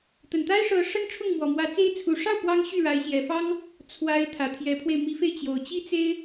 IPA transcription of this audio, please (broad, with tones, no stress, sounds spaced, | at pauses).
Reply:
t̪ ə˨˩ n t̪ a˥ ɪ̯ ʂ ɤ˧˥ ʂ ə˥ n ʈ͡ʂʰ ʊ˥˩ ŋ m w ɔ˨˩ m w ä˧˥ t͡s e˥ ɪ̯ t͡sʰ u˨˩ ʂ ɑ˥˩ ʊ̯ p w ɑ˥ ŋ ɕ y˥˩ ɻ a˧˥ ɪ̯ ɕ j ɛ˨˩ f ɑ˥ ŋ | t͡sʰ w a˧˥ ɪ̯ t̪ʰ ä˨˩ t̪ʰ j ɛ˧˥ pʰ w e˧ ɪ̯ m i˧˥ f e˧ ɪ̯ t͡ɕ j o˨˩ ʊ̯ t͡ɕ i˥ t͡s e˥ ɪ̯